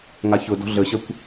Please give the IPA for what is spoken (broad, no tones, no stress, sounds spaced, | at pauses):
ŋ a ç ʊ d ɔ̤ ɮ ə ɕ ə kʷ